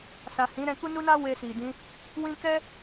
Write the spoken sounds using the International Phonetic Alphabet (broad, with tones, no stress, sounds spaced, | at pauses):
s a˨ h ĩ˨˦ ɾ ɛ̃˧ k u˦ n u˦ n a˦ w e˧ s i˨ d ĩ˧ | w ĩ˦ k ɛ˦